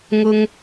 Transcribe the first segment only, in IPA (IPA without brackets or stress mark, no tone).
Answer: ŋ